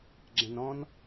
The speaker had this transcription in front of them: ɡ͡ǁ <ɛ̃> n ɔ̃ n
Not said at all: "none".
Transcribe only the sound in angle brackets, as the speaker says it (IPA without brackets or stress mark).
ɛ̃